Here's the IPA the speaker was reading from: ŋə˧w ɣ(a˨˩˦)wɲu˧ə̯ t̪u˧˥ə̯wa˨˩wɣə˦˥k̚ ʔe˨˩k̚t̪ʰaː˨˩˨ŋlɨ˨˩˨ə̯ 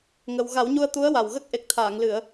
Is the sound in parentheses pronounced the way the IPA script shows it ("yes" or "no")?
yes